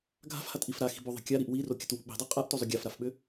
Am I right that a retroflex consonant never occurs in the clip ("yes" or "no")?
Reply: yes